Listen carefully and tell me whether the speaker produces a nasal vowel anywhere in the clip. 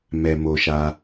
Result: no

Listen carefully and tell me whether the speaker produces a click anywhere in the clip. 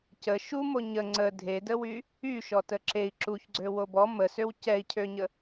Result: yes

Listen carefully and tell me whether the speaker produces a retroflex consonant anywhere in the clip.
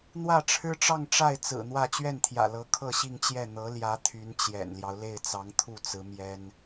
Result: yes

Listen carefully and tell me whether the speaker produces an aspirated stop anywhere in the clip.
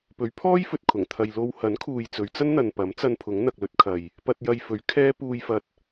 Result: yes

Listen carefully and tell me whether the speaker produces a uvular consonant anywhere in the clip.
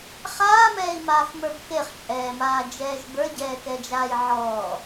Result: yes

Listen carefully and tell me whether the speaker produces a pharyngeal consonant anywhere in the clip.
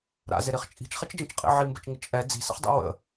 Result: yes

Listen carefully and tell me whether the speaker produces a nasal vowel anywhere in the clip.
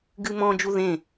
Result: yes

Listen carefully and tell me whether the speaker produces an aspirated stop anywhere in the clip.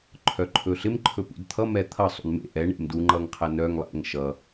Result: yes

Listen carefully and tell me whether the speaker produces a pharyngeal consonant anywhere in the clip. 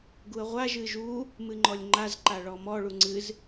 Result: no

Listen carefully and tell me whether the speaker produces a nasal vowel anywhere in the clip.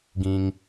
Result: yes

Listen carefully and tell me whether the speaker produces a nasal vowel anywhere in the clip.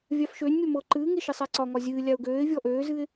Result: no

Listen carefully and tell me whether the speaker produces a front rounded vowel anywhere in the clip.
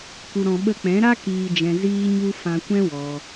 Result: no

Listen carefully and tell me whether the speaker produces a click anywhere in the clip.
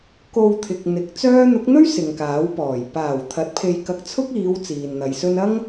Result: no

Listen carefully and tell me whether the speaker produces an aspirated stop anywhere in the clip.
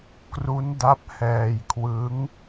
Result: yes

